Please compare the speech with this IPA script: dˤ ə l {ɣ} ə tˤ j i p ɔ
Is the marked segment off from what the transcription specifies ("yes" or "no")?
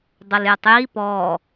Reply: yes